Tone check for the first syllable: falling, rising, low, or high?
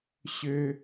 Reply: high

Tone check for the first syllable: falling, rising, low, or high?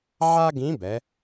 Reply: high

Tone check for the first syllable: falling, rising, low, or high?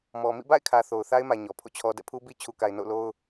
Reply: low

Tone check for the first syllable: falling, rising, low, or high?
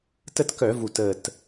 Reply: falling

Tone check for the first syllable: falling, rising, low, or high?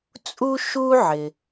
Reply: high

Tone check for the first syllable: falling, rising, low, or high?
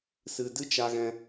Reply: low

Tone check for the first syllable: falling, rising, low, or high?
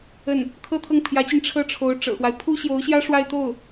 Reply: falling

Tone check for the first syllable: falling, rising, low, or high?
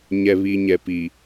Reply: low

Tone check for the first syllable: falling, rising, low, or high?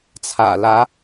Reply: low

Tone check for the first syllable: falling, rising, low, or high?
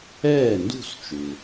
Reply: falling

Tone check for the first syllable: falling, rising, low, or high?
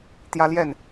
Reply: high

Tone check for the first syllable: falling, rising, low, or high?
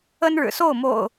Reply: high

